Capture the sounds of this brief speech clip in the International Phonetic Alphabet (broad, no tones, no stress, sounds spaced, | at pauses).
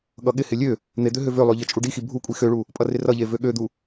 ɠ ʌ ɠ ɪ h ɪ lʲ ø | n̪ e d̪ ø ɦ ø v ø lˠ ø ʎ ʌ t͡ʃʼ u ɖ i x i bʱ u kʷʼ i x ø ɭ u | pʼ ʌ r ɪ r ʌ ʎ e v ø ɠ ø d̪ u